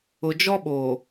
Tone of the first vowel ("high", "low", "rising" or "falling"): low